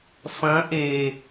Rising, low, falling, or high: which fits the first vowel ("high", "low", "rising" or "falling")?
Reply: rising